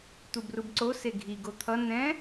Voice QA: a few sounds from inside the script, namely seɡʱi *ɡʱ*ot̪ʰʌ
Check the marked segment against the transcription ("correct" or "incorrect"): incorrect